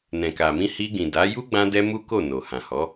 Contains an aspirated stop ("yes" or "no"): no